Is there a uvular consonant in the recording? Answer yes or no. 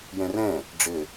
no